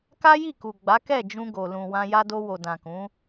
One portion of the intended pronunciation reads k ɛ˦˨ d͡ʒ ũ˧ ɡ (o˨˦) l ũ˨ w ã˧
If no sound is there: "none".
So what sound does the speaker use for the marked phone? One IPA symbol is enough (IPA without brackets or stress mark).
o˨